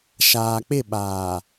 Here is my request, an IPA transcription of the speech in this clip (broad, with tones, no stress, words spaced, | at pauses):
ʃaː˨k͡pɪ˦˨ɓaː˨